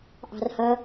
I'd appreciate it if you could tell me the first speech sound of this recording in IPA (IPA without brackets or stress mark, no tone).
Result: ʔ